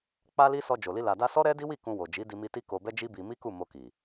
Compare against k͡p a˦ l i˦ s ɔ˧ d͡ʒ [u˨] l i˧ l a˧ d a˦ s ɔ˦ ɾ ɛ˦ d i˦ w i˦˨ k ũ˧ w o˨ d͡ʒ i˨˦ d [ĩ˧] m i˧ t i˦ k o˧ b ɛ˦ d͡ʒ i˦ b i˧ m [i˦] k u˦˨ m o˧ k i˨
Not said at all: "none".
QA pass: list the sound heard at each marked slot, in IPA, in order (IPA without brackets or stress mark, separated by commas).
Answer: o˨, i˧, i˦